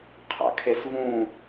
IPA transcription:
qʰa̰kʰesvũ

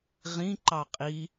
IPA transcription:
ʁĩ ǃɑqʼi

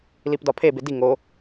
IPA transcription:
lipdɒpʰe bedi ŋo

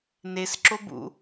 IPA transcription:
nesǁobṵ

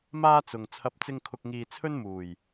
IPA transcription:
maː˥t͡sʊ˨ŋ t͡sʰɐ˨˥p̚t͡sɪ˧ŋkʰʊ˨k̚ ŋiː˨ t͡sʰɵ˥nmuː˨˩j

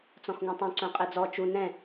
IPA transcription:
t͡sɔ̃xŋũtˤũ ǀœ̃qʼɛd͡zɔ t͡ʃu nɛ̃

